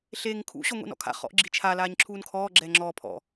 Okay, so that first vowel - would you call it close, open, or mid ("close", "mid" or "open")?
mid